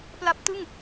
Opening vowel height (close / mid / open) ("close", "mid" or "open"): open